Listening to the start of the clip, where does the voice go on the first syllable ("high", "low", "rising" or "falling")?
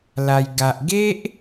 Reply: high